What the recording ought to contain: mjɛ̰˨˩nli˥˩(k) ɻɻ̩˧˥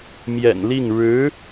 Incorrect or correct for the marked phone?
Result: incorrect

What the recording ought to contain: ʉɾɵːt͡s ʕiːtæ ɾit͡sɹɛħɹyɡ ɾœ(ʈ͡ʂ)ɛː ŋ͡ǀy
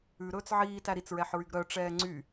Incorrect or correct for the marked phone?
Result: correct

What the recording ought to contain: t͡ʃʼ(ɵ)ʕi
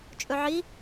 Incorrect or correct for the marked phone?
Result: correct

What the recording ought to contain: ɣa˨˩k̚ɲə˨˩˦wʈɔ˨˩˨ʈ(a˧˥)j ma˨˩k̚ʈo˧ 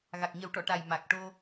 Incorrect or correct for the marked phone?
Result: incorrect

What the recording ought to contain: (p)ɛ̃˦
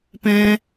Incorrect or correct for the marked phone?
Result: correct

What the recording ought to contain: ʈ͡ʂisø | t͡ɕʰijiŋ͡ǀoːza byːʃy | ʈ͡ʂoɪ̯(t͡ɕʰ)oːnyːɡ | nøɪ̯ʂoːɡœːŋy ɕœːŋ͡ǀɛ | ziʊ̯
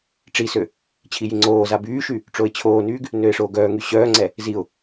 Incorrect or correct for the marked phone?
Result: correct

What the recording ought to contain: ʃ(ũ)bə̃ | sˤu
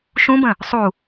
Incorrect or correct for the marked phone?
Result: correct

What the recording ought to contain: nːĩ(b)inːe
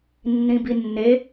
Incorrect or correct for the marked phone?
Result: correct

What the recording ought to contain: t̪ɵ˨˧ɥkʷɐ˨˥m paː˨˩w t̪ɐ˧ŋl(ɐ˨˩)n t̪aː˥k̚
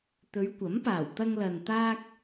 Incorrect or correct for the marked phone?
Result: incorrect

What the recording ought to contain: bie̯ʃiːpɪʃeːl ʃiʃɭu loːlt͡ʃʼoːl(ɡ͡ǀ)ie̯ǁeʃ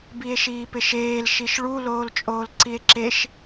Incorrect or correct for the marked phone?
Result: incorrect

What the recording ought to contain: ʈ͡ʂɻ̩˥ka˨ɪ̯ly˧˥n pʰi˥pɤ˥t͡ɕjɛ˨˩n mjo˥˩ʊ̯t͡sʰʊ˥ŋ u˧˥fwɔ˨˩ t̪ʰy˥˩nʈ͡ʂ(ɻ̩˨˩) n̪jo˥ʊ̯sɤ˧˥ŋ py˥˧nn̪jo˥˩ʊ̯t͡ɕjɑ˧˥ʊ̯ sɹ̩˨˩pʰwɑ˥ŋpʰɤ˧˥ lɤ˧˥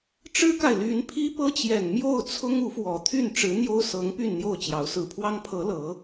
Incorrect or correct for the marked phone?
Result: incorrect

